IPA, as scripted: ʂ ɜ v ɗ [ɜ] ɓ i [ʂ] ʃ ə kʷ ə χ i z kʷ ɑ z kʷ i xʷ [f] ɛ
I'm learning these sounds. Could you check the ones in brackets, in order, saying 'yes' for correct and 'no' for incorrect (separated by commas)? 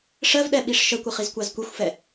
no, yes, yes